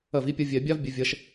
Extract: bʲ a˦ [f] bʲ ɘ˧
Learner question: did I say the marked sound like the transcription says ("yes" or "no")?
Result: no